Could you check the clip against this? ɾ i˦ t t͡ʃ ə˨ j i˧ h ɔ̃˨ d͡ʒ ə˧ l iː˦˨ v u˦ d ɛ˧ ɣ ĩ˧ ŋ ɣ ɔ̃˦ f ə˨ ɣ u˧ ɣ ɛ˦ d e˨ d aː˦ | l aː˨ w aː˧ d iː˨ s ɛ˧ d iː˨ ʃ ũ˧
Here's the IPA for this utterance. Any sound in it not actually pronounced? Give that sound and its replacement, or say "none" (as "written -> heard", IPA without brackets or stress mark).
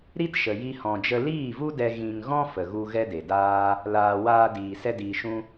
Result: t͡ʃ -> ʃ